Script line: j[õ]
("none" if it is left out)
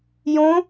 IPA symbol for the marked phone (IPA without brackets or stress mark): õ